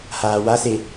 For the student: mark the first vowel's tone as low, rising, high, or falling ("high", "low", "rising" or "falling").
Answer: low